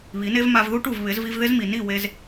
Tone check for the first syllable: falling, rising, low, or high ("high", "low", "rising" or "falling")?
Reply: rising